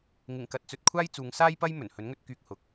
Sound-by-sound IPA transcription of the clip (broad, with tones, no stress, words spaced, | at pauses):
ŋɪ˨˩ŋkɐ˨t̚t͡sɵ˨t̚ kʷʰaː˥jt͡suː˨˧ŋsaː˥jpɐ˥j mɵ˨˩nhɵ˨˥nŋɵ˧t̚kyː˧k̚ hʊ˨k̚